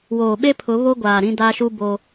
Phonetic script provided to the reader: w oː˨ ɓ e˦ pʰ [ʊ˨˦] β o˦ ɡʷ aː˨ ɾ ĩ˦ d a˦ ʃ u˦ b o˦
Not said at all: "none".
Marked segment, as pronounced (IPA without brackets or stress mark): ʊ˨˦